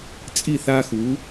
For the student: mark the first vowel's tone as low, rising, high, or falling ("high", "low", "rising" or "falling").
falling